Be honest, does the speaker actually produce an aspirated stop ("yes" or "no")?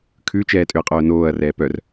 yes